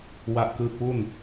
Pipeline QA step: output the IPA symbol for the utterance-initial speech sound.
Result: w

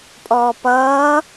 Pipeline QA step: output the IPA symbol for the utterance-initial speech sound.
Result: pʼ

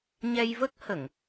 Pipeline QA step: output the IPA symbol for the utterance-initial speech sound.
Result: ɲ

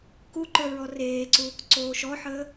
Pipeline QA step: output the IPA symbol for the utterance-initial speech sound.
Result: k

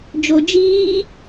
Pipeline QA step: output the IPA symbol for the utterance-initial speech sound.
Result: d͡ʒ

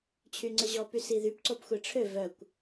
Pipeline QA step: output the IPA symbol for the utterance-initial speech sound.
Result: t͡ɕʰ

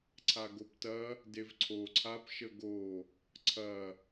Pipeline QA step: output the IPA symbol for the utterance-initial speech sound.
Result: ǀʰ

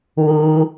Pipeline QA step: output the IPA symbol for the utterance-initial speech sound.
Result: w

